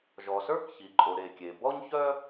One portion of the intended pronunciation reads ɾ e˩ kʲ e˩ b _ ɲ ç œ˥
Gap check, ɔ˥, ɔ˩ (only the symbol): ɔ˥